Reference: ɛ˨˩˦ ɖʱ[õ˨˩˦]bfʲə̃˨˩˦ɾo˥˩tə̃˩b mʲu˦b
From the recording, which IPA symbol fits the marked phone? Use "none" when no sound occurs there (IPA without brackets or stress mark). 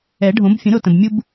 õ˨˩˦